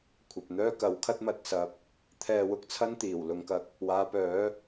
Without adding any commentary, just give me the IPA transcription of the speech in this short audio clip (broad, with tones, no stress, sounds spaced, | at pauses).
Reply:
kʷʰ ɐ˨ p̚ n̪ œː˥ k ɐ˨˥ w kʰ ɐ˥ t̚ m ɐ˨ t̚ s ɐ˨ p̚ | t̪ʰ ɛː˧ w ʊ˨˥ k̚ t͡sʰ ɐ˥ n t̪ iː˨˩ w l ʊ˨˧ ŋ k ɐ˨˥ k̚ | w aː˨˧ p œː˨˥